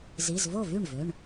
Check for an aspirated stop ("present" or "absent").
absent